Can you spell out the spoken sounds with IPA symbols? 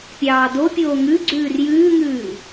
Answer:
pʲ ɑː d o pʲ oː ŋ ʉ ɡ͡ǀ ʉː r j ʉː ŋ ʉː

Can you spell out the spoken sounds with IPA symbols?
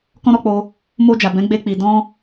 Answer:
k ɔ̃˦ ɾ ɔ˧ k͡p o˧ | m o˧ d͡ʒ a˨ b ɛ̃˨˦ ɡ͡b e˧ k͡p i˨ d ɔ̃˧

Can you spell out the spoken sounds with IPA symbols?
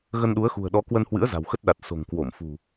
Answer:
ɣ ə˧ n ɗ u˨˦ ə̯ x ṳ˨˩ ə̯ ɗ ɔ˨˦ k w ə˧ n h w ɨ̰˧˥ ə̯ z a̤˨˩ w x ə˦˥ t̚ ɗ a˨˩ t̚ s o̤˨˩ ŋ k w o˧˩ m f ṳ˨˩

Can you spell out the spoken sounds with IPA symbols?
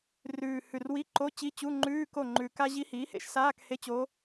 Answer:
r ʉː˨˩ h ʉ˨˩ r w i˧˥˧ ǃ o˧˥˧ t͡ɕ i˧˥˧ t͡ɕ u˧˥˧ ŋ͡ǃ ʉː˧˥˧ k o˥˩ ŋ͡ǃ ʉ˨˩ k a˥ ʑ i˧˥ h iː˩˥ h ḛ˧˥ ʃ s aː˧˥˧ k h e˧˥˧ t͡ɕ o˧˥

